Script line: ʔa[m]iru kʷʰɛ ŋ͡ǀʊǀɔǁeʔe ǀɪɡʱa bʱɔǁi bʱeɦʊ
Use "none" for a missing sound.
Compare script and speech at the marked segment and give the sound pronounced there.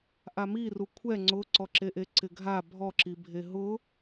m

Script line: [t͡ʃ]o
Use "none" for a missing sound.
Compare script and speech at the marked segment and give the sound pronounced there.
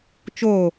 t͡ʃ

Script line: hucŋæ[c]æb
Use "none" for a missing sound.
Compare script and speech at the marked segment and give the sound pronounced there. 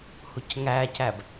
c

